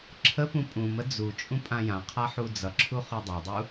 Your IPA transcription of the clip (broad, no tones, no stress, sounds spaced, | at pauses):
ǁʰ ə p ũ pʼ ũ m ə d͡z u t͡ʃʼ ũ pʼ ã j ã qʰ a ħ u d͡z ʌ ǁʰ u χ u dˤ a dˤ u